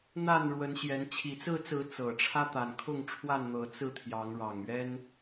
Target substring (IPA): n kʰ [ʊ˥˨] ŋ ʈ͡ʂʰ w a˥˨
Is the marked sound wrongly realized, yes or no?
no